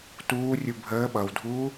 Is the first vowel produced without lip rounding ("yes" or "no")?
no